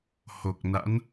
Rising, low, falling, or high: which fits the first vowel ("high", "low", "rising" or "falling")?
low